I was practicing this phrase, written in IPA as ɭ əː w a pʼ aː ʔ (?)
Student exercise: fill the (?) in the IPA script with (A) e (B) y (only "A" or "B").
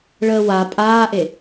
A